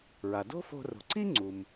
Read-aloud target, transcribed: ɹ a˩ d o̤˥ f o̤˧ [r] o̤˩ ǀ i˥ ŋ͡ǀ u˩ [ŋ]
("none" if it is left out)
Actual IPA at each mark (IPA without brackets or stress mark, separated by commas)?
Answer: r, m